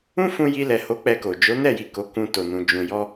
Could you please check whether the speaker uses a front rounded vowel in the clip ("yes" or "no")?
no